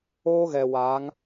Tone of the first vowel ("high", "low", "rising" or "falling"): high